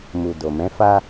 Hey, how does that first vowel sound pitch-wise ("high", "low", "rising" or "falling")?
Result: low